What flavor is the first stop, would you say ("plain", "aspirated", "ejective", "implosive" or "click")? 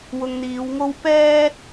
plain